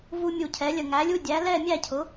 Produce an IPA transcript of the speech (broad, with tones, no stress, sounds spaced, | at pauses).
v u˧ mʲ u˧˩ cʰ ɛ˩˥ lʲ ə˧˩ ŋ æ˩˥ lʲ u˧˥˧ dʲ æ˩˥ l ɛ˥˨ mʲ æ˥˨ cʰ ʊ˩˥